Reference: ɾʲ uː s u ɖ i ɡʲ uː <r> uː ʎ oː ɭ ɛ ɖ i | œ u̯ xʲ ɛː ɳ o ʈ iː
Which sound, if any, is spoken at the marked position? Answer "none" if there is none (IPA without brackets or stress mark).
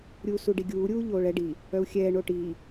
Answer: ɾʲ